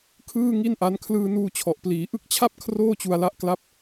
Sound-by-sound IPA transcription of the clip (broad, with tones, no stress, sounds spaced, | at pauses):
kʰ ɯː˥˩ ŋ i˥˩ n ʔ a˦˥ n kʰ l ɯː˧ n uː˧ t͡ɕʰ ɔ˨˩ ʔ p l iː˩˦ ʔ ɯ˦˥ k̚ t͡ɕʰ a˥˩ p̚ kʰ r oː˥˩ t͡ɕ u˧ a̯ l a˦˥ ʔ k l a˥˩ p̚